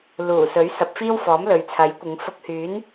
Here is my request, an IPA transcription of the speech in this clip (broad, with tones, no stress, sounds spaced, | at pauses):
l uː˨˩ s ɵ˨˥ ɥ s ɐ˨˥ p̚ f iː˥ w f ɔː˨˥ m l ɵ˨ ɥ t͡sʰ ɐ˨˥ j kʷ ɪ˨˧ ŋ f ʊ˧ k̚ h yː˨˥ n